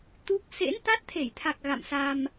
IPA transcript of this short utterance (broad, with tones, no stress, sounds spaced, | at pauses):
t̪ u˦˥ k̚ s ḛ˧˥ n t̪ a˦˥ t̚ t̪ʰ e˧˩ j t̪ʰ a˨˩ k̚ ɣ a̰˧˨ m s a˧ m